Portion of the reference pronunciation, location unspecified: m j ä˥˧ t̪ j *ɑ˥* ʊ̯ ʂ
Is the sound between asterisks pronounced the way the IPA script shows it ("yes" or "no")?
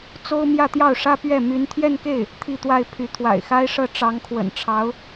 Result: no